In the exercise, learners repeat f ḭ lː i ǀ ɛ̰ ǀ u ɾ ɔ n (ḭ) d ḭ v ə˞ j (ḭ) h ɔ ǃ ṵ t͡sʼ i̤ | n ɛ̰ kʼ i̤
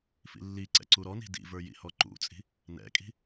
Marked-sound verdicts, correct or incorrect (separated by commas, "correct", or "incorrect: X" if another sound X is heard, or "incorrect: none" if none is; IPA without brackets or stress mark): incorrect: i̤, correct